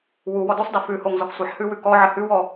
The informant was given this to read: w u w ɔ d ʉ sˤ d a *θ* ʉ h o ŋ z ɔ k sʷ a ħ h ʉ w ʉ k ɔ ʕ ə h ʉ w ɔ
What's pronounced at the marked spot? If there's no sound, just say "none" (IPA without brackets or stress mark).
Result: f